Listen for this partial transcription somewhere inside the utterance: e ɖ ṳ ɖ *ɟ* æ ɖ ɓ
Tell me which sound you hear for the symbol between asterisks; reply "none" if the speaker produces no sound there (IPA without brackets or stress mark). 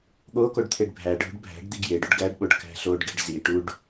ɡ